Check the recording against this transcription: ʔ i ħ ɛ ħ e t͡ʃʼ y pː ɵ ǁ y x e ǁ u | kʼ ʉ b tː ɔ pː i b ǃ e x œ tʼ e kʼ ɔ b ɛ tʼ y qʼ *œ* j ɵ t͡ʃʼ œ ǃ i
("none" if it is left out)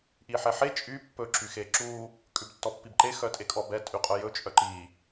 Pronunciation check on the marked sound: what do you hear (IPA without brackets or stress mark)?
œ